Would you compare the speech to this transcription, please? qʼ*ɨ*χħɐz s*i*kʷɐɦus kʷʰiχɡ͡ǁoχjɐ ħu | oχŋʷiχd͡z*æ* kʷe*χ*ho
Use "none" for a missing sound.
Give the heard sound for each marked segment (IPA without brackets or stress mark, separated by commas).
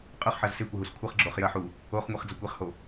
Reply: ʉ, e, ɐ, χ